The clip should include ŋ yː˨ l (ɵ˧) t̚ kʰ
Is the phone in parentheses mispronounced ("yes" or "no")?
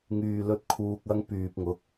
no